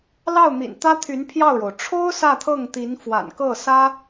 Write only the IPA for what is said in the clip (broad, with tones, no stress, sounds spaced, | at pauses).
l ɑ˥˩ ʊ̯ n̪ ḭ˨˩ n t̪ ä˥ t̪ʰ y˧˥ n pʰ j ɑ˥˩ ʊ̯ ɻ o˩ ʊ̯ ʈ͡ʂʰ o˥ ʊ̯ s ä˥˧ t̪ʰ ɤ˥˩ ŋ t̪ i˧˥ n f w a̰˨˩ n k ɤ˥˩ s ä˥